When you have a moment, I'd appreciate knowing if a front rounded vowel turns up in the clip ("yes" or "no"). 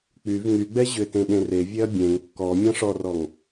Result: yes